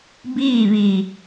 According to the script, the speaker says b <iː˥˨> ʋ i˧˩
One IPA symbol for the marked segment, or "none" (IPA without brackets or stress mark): iː˥˨